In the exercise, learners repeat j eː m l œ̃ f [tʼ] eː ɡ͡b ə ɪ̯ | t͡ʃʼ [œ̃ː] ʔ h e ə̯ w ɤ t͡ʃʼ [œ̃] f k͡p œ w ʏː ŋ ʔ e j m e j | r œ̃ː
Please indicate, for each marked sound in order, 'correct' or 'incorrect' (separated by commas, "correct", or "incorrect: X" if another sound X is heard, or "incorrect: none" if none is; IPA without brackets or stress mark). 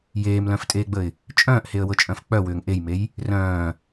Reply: correct, correct, correct